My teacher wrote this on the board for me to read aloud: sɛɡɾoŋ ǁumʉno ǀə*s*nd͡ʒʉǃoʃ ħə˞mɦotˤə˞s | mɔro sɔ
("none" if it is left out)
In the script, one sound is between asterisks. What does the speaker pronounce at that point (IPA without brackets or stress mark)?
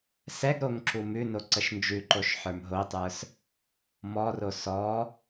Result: ʃ